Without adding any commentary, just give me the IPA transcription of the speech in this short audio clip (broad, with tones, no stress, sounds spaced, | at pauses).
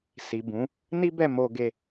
s i˨ b ũ˨˦ | n i˦ b ɛ˦˨ m o˧ ɡ e˧